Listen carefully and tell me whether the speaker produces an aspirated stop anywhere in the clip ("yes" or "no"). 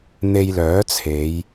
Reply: yes